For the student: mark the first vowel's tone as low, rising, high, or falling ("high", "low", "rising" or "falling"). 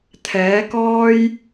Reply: rising